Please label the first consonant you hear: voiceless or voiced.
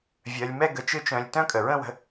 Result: voiced